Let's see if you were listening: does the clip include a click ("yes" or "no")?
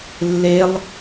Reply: no